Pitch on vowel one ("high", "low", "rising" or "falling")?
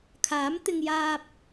rising